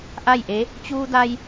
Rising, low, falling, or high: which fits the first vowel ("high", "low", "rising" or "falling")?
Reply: falling